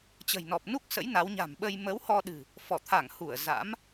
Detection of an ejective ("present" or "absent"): absent